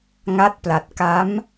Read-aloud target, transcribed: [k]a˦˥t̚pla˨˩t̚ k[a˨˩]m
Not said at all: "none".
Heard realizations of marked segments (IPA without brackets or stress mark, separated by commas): ŋ, a˦˥